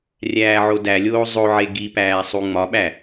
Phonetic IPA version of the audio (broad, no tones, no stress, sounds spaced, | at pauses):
rʲ æː ʕ o d æ lʲ oː zˤ o ʕ e ɡ i p æː sˤ u ŋ͡m ɒ ɓ æ